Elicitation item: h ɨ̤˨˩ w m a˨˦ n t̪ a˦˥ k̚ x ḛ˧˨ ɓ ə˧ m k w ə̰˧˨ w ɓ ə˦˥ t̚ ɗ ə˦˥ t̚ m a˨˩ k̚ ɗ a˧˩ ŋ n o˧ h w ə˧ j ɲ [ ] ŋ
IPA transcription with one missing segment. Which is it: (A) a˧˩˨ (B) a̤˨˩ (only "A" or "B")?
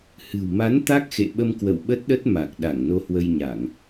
A